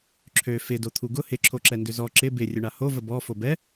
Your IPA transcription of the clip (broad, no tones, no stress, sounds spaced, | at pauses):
ǁʰ ø f ɪ d o t̪ʰ u ɡ ʊ h ɪ ǁʰ o ǁ ɛ n d ʏ z ɔ ǁ ɪ b ɪ rʲ ʊ ɳ a h o v ə b ɔ f o b ɛ